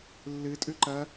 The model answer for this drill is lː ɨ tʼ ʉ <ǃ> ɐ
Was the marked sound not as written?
no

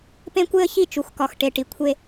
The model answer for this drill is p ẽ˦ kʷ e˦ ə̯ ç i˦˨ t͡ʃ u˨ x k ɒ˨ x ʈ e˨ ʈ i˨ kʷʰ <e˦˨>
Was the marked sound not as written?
yes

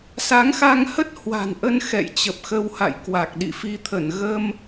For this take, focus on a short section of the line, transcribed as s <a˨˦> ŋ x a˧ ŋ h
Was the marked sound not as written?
no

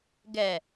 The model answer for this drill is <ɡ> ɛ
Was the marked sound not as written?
no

